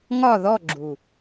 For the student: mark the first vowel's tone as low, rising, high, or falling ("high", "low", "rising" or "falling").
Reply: falling